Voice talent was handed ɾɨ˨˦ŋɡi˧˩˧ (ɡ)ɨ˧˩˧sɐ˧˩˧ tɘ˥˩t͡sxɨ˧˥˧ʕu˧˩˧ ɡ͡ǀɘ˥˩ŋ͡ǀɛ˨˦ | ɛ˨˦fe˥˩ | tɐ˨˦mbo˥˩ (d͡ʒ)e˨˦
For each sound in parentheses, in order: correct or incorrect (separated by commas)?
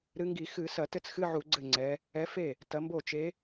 incorrect, incorrect